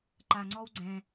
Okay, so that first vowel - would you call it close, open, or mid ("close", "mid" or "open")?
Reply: open